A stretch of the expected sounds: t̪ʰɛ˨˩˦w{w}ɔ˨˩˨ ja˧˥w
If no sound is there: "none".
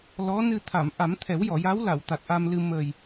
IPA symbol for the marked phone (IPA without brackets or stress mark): j